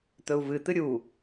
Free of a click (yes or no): yes